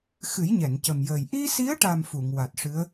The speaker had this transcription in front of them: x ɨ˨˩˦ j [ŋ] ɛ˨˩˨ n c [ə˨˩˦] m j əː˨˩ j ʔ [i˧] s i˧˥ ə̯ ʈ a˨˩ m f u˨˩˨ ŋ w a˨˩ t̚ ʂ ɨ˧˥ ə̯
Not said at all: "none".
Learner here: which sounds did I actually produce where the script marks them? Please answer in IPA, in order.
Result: ɲ, ə˨˩, i˧

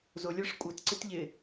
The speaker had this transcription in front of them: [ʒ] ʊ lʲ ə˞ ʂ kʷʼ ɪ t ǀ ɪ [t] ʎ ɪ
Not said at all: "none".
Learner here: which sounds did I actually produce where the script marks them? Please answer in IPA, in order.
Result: z, t

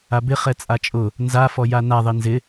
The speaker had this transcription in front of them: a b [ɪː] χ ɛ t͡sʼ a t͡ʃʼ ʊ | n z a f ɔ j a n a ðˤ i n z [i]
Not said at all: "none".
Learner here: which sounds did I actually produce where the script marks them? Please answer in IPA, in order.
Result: ɪ, ɪ

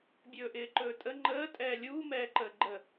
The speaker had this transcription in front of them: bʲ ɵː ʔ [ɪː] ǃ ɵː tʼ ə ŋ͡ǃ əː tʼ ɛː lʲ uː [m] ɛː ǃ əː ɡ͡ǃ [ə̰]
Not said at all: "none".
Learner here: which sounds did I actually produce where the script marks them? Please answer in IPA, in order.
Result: ɪː, m, ə

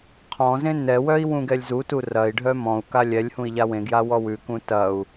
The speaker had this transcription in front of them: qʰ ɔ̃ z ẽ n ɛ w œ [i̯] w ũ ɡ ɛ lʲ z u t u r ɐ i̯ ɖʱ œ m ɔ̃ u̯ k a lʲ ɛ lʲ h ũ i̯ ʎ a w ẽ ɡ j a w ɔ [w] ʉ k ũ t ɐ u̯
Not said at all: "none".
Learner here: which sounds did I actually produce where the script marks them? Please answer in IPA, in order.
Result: i̯, w

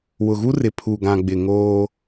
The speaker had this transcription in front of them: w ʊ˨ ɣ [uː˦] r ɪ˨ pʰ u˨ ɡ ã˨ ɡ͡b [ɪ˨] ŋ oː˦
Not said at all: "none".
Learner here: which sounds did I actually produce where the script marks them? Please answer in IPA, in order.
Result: u˦, ɪ˨

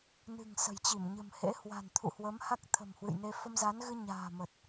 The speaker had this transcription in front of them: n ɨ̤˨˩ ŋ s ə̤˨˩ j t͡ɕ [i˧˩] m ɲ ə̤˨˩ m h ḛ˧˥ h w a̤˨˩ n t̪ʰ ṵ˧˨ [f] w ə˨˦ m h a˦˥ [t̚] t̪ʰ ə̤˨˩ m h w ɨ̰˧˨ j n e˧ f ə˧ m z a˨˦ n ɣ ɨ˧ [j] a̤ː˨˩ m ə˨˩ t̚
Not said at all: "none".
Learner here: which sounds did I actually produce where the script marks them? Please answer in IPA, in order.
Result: i˧˩, h, k̚, ɲ

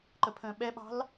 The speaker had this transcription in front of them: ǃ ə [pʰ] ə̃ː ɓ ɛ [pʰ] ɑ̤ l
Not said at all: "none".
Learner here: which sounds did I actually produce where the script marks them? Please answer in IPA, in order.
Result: pʰ, ɓ

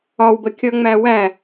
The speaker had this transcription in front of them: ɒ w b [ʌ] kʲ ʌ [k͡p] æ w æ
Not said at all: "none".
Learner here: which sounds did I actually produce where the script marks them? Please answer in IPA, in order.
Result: ə, ŋ͡m

